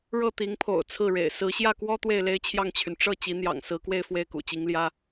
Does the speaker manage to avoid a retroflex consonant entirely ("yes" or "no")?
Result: no